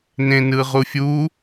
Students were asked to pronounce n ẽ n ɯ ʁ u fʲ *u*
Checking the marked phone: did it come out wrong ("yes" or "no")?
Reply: no